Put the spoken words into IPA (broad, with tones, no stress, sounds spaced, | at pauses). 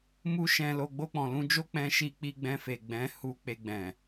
m u˦ ʃ ɛ̃˧ l o˧ ɡ͡b o˧ k͡p ɔ̃˨ l ũ˧ d͡ʒ o˦ k͡p ɛ̃˧ ʃ i˧ k͡p i˧ ɡ͡b ɛ̃˧ f e˨ ɡ͡b ɛ̃˨˦ h u˧ k͡p e˧ ɡ͡b ɛ̃˨